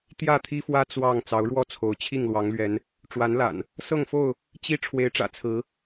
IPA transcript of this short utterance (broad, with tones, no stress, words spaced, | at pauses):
t̪jä˥˨t̪ʰi˦fwä˦ t͡swɑ˥˨ŋ t͡sɑ˨˦ʊ̯ɻwɔ˥˨t͡sʰo˨˦ʊ̯ t͡ɕʰi˥˨ŋlwɑ˨˦ŋlɥɛ˨˦n | ʈ͡ʂwa˨˦nla̰˨˩n | sɤ˥˨ŋfo˥˨ʊ̯ | t͡ɕi˦ ʈ͡ʂʰwe˨˦ɪ̯ʈ͡ʂä̰˨˩ t͡sʰɹ̩˨˦